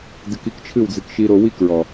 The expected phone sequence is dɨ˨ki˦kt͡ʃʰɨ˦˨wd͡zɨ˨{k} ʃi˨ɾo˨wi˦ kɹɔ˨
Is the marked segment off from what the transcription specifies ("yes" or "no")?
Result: no